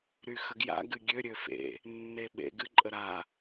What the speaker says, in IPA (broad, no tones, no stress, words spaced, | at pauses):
ɾyxəɡja̰ ɡɨɡʲø ɾʲøfḛ | nːeɓḛɡɨ ǃʼəɾa